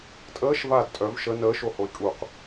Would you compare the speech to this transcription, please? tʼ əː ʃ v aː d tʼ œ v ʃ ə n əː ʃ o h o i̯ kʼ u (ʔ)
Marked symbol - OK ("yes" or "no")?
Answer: no